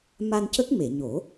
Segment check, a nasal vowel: absent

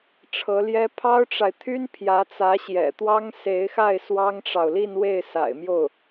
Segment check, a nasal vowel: absent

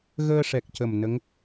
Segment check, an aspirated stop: absent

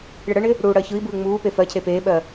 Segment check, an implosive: present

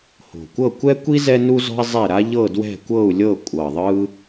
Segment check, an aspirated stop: absent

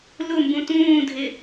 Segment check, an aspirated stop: absent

